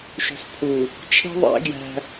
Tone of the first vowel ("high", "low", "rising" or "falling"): low